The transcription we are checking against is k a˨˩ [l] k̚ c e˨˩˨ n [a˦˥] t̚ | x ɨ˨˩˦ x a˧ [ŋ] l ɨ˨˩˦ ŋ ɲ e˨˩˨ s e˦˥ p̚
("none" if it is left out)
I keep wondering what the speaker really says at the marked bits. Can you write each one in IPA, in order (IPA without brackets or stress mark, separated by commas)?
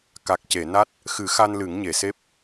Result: none, a˦˥, n